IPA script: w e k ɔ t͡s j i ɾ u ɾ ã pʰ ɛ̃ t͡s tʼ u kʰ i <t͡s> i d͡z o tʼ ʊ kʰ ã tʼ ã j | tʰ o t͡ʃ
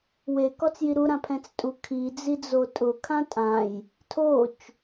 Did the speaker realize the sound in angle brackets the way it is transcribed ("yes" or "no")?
no